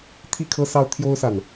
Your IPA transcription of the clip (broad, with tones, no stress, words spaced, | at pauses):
t̪ʰi˥˨kʰɤ˦ sɑ˦ʊ̯t̪ʰjo˦ʊ̯sa˨˩n